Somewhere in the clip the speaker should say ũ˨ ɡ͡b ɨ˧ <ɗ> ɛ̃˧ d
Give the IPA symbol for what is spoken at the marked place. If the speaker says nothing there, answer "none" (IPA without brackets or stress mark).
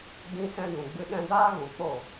ɗ